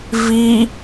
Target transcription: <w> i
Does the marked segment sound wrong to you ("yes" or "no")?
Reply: yes